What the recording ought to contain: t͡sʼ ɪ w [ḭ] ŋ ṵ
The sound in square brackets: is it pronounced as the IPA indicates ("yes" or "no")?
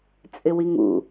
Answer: no